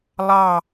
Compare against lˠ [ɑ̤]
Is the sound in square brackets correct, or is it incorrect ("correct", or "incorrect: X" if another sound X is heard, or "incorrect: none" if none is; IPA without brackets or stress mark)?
incorrect: ɑ